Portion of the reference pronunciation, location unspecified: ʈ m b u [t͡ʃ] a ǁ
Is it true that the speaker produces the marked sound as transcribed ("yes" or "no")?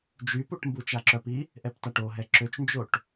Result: yes